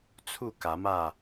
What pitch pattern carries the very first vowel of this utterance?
falling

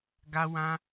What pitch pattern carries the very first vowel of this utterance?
high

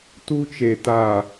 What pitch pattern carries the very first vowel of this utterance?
high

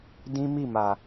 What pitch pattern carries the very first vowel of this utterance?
high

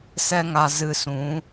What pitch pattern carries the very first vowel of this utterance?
high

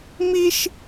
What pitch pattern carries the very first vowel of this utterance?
high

